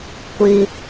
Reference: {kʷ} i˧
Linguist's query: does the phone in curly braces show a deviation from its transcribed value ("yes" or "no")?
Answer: no